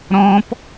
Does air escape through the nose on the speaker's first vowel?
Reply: yes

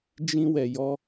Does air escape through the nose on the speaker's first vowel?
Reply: yes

